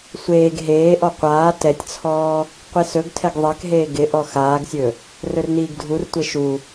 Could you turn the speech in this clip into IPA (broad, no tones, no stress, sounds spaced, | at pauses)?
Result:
sʷ eː ɡ ɦ eː ʔ ɔ qʷ aː t ɛ tʲ t͡sʰ ɔː | qʷ i s ɵ ɡ tʰ ɛ ɡ ðˤ ɛ k ɦ eː ɡ ɪ ʔ ɔ x aː ɡ sʲ ɵ | r ɵ r n iː ɡ dʱ u r tʷ e ʃ u